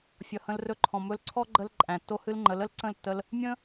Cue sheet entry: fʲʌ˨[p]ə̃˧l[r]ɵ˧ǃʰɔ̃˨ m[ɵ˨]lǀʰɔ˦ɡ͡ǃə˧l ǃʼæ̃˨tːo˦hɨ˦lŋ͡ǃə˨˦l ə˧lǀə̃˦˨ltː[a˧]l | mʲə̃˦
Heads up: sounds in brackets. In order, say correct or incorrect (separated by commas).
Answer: incorrect, correct, incorrect, incorrect